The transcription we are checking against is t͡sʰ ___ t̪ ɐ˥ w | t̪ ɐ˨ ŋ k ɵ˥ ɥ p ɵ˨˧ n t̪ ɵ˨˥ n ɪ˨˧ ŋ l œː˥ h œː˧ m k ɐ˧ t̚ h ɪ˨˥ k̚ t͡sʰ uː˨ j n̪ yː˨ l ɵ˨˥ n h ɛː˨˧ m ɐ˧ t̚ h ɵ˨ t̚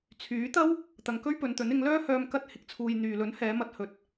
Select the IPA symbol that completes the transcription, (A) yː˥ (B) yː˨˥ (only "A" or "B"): B